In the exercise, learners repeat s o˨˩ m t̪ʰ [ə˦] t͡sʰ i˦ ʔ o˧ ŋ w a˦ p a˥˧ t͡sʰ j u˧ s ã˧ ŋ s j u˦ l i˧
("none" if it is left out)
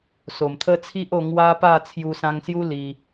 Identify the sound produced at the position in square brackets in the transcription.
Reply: ə˦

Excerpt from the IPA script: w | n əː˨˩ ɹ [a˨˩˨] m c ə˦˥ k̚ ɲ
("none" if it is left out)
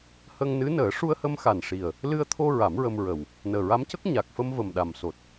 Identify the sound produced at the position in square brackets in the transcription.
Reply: a˧˥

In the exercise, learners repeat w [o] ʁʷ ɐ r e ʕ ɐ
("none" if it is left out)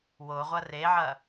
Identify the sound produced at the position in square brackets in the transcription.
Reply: o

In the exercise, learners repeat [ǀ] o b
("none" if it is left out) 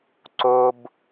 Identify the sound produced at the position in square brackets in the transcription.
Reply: ǀ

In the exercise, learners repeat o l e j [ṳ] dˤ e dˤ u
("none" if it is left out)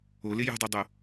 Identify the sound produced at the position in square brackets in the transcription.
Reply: ṳ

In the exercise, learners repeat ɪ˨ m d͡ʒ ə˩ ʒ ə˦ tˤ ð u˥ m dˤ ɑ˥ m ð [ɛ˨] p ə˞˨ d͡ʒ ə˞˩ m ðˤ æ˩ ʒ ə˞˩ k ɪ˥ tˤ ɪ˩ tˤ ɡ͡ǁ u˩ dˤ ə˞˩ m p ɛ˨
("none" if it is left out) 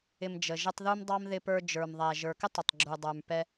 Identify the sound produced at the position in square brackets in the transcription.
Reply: ɪ˨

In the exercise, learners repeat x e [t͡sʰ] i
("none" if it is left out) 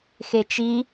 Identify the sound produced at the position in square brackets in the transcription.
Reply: t͡ʃ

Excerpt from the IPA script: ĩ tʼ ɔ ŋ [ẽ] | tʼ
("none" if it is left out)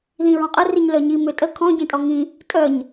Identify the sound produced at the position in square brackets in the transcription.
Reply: ĩ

